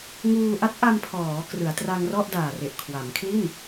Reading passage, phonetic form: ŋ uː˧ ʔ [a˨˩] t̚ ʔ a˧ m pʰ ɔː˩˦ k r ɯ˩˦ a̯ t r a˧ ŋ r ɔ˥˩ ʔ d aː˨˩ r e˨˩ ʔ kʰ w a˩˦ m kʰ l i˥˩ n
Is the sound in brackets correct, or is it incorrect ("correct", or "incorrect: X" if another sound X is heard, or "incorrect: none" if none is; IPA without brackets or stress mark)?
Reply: incorrect: a˦˥